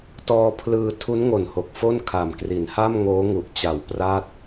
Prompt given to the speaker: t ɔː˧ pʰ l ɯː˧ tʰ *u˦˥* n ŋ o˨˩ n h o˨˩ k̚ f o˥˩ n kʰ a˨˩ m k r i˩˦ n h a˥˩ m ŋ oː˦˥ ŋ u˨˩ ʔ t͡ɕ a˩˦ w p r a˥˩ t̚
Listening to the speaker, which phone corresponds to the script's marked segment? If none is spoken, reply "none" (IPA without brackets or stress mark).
u˦˥